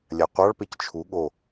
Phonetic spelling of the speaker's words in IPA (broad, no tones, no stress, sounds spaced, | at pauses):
lʲ a qʷ ɑ ɭ p e c t͡ʃʰ u ɠ o